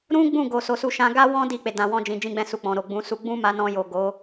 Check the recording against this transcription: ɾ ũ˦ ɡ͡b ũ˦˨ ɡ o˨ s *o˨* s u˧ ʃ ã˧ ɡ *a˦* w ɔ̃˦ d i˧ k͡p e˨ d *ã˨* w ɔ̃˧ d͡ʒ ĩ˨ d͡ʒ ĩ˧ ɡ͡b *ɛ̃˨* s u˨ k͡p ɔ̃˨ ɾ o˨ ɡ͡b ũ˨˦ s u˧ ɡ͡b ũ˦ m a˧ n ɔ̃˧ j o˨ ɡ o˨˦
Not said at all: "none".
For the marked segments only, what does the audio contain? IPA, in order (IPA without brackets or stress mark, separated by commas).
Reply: o˨, a˦, ã˨, ɛ̃˧